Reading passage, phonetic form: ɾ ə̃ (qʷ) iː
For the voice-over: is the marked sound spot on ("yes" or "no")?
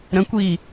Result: no